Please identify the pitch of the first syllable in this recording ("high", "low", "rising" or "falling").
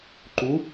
rising